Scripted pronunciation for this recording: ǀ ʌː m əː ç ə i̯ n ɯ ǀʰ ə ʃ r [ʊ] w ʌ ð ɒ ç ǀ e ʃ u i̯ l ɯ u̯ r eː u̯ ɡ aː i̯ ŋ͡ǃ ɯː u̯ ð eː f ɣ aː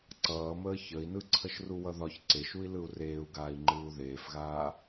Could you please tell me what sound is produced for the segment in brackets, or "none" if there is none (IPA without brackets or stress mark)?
u